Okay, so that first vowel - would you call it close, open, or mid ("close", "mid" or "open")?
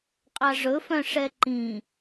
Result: open